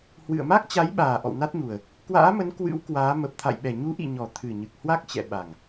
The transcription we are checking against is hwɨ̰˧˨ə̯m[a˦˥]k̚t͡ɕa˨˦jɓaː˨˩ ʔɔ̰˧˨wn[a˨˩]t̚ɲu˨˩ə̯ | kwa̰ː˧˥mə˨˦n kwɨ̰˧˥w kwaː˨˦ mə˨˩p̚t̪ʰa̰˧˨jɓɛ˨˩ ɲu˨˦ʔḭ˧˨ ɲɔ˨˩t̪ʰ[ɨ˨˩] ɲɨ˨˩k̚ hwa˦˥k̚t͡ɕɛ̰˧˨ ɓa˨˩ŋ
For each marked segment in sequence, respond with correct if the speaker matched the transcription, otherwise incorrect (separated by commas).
correct, incorrect, correct